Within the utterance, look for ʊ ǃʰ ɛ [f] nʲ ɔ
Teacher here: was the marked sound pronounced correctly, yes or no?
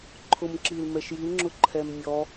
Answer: no